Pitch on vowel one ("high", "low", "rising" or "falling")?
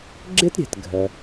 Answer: high